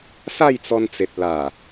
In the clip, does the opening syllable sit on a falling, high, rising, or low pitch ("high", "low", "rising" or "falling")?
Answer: falling